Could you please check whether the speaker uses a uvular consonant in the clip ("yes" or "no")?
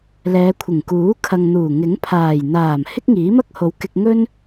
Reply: no